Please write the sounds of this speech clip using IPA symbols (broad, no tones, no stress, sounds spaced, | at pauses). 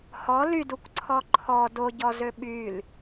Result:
h ɔ l y d u kʷ ǀʰ ɔ ǃʰ ɔ d o ɟ ɔ z ø ɓ y l